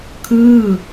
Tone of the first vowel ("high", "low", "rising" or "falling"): falling